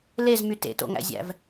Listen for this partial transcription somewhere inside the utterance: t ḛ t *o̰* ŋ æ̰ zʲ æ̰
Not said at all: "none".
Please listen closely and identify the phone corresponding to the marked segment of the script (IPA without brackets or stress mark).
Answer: o̰